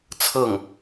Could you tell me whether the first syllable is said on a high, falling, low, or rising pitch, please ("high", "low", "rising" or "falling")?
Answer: falling